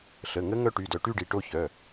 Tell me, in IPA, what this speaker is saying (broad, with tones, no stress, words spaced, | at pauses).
ɬə˩˧˩ŋə˦˥ ŋœ˦˥ʈy˩˧˩dœ˧ ʈy˥˧ɖi˩˧˩ ʈo˥˧çœ˩˧˩